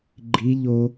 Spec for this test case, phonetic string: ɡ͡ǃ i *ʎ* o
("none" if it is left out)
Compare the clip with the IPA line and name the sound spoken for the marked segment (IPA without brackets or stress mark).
ʎ